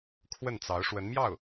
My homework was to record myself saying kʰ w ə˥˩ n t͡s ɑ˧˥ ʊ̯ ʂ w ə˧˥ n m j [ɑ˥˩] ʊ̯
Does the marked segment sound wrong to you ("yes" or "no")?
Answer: no